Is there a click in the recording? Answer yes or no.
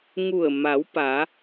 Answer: no